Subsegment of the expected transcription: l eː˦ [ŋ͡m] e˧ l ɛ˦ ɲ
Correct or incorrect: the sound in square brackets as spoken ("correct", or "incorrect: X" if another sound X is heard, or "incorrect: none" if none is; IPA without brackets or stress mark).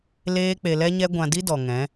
incorrect: k͡p